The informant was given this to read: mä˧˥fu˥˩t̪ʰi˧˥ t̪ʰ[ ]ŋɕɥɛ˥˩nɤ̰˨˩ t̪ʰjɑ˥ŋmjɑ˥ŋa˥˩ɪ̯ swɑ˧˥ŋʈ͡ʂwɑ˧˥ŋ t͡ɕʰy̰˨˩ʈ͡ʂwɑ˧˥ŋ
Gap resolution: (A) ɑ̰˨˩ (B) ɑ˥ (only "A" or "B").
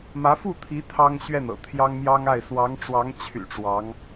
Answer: B